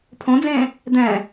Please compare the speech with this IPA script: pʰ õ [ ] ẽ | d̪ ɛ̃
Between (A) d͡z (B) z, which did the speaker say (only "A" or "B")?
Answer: A